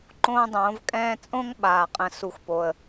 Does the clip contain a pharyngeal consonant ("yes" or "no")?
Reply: no